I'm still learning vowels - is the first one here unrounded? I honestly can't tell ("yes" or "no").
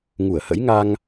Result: no